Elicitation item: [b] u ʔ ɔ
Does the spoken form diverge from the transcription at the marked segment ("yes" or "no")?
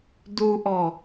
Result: yes